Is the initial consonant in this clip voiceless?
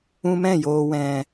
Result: no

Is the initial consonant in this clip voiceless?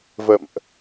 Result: no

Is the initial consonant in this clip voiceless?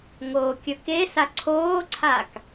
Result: no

